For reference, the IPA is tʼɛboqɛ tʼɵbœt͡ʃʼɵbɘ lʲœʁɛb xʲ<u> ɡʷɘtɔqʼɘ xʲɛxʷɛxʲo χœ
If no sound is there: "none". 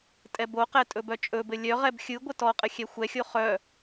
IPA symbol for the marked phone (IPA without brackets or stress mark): ɯ